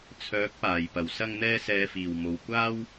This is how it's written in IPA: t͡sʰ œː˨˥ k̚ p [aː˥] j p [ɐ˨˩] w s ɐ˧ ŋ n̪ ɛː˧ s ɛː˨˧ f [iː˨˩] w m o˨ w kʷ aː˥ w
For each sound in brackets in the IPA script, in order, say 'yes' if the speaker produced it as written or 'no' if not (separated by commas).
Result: no, yes, yes